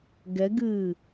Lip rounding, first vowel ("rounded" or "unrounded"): unrounded